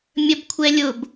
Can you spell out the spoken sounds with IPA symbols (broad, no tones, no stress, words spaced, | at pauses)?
mʲəbkʷʰɛlʲʊb